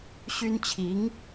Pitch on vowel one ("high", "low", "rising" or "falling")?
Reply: high